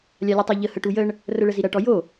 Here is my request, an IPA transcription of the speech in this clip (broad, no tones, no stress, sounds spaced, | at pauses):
lʲ a lʲ ɨ tˤ a ʎ ə h ə ʈ u j ə ɳ | r ə ɭ ə z i ɾ ɐ ʈ ɔ j o